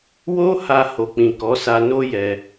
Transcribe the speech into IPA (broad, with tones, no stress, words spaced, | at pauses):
wo˦ha˧ ho˨k͡pĩ˨kɔ˨˦sa˧ no˦jɛ˧